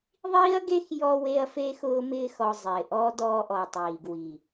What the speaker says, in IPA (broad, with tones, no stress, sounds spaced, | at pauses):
ðˤ iː˦ ɐ̯ ɡ e˦ x j ɔ˧ w e˧ ɐ̯ f e˧ x ʊː˧ m ɪː˧ x ɔ˨ zˤ ɪː˨ ʔ ɔ˦ d ɔː˧ ʔ ɔ˨ tˤ iː˨ ɡ w i˨